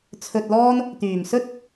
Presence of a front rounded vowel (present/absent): present